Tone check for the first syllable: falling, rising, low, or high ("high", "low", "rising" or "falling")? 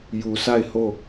low